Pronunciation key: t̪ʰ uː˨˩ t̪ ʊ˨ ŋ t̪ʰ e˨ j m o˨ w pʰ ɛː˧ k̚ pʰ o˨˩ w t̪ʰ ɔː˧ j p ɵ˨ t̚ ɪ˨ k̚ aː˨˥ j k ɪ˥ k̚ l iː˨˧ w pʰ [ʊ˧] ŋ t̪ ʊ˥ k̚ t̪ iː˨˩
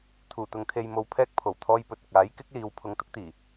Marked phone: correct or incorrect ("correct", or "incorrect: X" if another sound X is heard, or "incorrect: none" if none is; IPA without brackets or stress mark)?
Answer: correct